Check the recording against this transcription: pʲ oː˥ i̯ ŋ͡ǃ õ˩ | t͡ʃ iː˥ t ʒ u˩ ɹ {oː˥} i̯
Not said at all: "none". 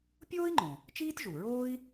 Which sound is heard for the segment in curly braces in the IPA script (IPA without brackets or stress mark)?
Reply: oː˥